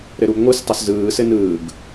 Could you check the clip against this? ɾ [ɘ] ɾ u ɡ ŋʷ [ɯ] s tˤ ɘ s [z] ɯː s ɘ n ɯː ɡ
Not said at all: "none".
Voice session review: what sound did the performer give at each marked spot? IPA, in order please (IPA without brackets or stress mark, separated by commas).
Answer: ɘ, ɯ, z